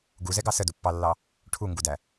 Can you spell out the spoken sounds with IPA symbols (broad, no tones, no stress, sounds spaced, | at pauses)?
ɡ u z ɛ ɡ ɑ s ə d u pː ɑ lː ɑ | ʈʰ u ŋ ɡ u d æ